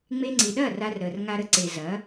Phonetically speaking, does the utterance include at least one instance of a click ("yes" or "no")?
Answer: yes